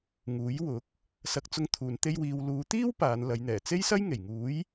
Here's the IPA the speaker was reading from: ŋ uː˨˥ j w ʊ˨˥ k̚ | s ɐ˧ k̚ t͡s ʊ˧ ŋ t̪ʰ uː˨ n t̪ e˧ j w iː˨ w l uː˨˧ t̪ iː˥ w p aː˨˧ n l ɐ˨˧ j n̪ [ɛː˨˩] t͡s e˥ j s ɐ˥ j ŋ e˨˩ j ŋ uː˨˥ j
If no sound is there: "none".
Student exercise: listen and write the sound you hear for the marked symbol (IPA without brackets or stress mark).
ɛː˨˩